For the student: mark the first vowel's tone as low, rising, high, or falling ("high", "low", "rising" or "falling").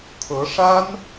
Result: rising